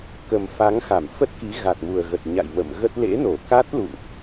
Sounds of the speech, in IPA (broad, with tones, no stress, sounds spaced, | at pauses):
k ə˨˩ m f a˨˦ ŋ x a˧˩ m f ə˦˥ t̚ k i˨˦ ɣ a˨˩ t̚ m u˨˩ ə̯ ɣ ə˨˩ t̚ ɲ a̰˧˨ j m ə̰˧˨ m ɣ ə˦˥ t̚ l ḛ˧˥ n o˧˩ k a˦˥ t̚ l ṵ˧˨ ŋ ʔ